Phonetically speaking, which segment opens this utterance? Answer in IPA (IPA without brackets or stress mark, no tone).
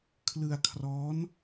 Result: kʰ